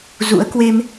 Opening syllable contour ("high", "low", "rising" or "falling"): rising